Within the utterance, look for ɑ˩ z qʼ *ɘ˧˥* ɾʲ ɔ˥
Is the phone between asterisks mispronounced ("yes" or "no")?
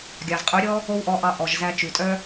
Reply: yes